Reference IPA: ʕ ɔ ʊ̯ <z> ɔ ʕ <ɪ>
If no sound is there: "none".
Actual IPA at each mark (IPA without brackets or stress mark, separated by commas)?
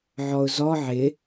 z, ɪ